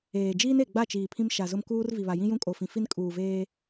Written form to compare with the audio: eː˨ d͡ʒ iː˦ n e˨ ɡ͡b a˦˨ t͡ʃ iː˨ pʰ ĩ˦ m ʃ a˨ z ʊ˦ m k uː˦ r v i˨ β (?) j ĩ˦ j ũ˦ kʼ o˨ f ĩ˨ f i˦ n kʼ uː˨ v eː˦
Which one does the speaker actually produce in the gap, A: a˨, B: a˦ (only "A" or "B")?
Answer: A